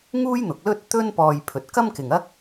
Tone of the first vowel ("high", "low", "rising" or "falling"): high